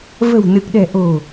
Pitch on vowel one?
low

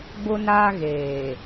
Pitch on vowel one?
high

